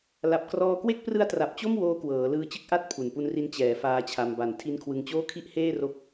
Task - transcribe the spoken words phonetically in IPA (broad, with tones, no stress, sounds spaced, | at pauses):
l a˨˩ p̚ k r ɔː˧ k w e˥˩ k̚ p r ɯ˦˥ a̯ t r a˨˩ p̚ t͡ɕ o˥˩ m w oː˦˥ k w ɤː˩˦ l ɯː˧ t͡ɕ ɯ˥˩ k̚ ʔ a˥˩ t̚ pʰ u˨˩ n p u˦˥ n r i˦˥ n t͡ɕ ɛː˩˦ f aː˦˥ t͡ɕʰ a˧ m b a˩˦ n tʰ i˦˥ n kʰ w ɯ˧ ŋ t͡ɕ oː˥˩ kʰ i˥˩ ʔ h eː˥˩ r o˦˥ k̚